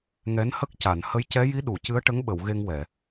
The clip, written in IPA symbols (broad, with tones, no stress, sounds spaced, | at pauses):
ŋ ɛ˧˥ n h ə˦˥ k̚ c a˨˩˨ n h ə˧˥ j c ɛ˧˥ j i˧˥ ɗ u˨˩˨ c ɨ˧˥ ə̯ ʈ ə˧˥ ŋ ɓ ə˨˩˨ w ɣ e˧ ŋ w ɛ˨˩˨